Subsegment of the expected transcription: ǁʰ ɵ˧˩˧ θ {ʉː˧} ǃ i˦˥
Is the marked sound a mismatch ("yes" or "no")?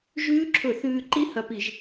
no